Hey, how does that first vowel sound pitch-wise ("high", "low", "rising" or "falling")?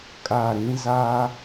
falling